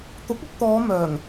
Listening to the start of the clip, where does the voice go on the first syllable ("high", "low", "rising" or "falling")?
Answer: rising